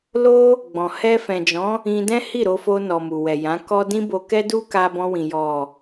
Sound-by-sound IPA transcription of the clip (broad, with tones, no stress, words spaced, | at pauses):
lo˦ | ɡ͡bɔ̃˨ hɛ˧fɛ̃˨d͡ʒɔ̃˨˦ | ĩ˧dɛ̃˦hi˦˨ ɾo˧fo˧nɔ˨mu˨ wɛ˨jã˨˦kɔ˦ dĩ˦bo˧kɛ˦du˦ ka˧bɔ̃˧wĩ˨ jɔ˨